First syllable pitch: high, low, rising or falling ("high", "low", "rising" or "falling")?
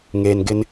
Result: low